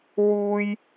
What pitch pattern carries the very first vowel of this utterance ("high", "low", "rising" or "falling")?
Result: high